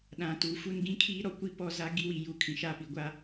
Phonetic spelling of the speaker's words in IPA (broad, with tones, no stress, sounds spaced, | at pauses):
ɗ ã˨ t u˨ f u˦ n ɡ ĩ˦ kʰ iː˦ ɾ ɔ˦ kʷ i˦ p ɔ˦ z a˦ ɡ i˦˨ w i˨ j u˨ kʰ ĩ˨ ʃ a˦˨ p i˨ ɡʷ a˦